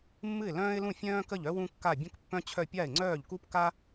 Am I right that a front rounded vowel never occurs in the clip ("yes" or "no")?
no